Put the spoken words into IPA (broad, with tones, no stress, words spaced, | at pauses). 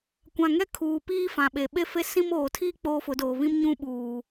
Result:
kʷã˨ŋɛ˦ kʰuː˨piː˦ fã˨ɓe˨ ɓe˦fe˦ sĩ˦m oː˨tʰiː˦ k͡poː˦fʊ˨˦doː˨ βĩ˦mɲũ˦ ɓuː˨